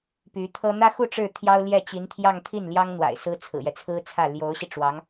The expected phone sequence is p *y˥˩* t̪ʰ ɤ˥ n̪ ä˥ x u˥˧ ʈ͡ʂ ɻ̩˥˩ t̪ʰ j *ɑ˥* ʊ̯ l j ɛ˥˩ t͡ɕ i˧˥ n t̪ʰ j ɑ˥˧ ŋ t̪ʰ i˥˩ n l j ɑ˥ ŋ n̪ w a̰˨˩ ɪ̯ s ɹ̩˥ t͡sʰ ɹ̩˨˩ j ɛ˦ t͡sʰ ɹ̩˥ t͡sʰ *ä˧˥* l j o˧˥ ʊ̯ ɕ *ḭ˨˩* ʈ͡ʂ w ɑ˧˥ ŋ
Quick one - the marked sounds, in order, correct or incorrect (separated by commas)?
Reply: incorrect, correct, incorrect, incorrect